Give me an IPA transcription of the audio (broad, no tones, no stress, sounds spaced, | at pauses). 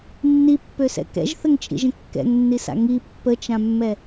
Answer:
nː i pː ø s ɛ̰ k ɛ̰ ʒ θ ə ŋ t͡ʃʼ ḭ ʒ ə̃ kː ɛ̰ ŋ nː i s a̰ ŋ i pː ə t͡ʃ ã mː ɛ